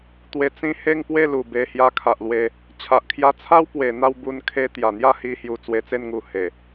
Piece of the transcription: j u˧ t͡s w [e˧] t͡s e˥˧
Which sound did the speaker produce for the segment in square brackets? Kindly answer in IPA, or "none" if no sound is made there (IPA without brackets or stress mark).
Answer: e˧